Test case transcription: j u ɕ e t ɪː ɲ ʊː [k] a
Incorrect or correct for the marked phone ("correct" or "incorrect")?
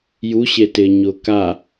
correct